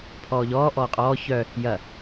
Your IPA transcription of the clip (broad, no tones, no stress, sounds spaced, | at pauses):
pʰ ɔː ʎ ɔː ʔ ɔː qʼ ɔː ç œ | j ɐ